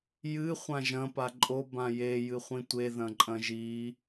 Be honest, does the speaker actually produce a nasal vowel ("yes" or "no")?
yes